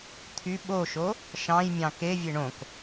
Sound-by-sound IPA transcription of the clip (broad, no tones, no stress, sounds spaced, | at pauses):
t̪ʰ y ɓ o ʃ o | ʃ ɑ̃ j mʲ ɑ̃ k e vʲ e ɳ õ k